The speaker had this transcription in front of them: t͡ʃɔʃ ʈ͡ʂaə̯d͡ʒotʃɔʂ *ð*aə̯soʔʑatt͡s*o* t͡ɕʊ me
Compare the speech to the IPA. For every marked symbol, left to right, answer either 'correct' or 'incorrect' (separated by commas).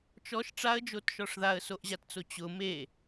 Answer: correct, correct